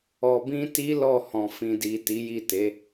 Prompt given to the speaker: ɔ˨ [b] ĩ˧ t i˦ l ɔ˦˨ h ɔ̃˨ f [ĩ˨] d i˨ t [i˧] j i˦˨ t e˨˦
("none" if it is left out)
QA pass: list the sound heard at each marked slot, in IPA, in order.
b, ĩ˨, i˨˦

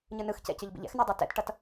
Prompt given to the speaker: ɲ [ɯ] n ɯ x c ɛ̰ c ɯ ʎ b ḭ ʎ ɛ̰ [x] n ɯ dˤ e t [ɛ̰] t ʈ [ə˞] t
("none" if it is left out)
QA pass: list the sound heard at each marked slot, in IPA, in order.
ɯ, x, ɛ̰, ʌ

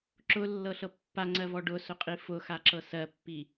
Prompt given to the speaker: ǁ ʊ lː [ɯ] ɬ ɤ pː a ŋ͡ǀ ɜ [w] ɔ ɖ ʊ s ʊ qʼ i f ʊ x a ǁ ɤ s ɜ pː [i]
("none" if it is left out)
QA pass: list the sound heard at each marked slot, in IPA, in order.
ɤ, v, i

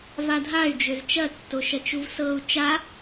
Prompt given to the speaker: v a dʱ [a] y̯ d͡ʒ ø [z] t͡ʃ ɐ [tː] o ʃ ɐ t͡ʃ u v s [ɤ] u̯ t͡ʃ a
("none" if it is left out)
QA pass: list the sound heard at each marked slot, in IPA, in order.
a, z, tː, ɤ

